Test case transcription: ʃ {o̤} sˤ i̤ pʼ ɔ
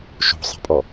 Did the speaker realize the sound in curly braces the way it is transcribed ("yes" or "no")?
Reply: yes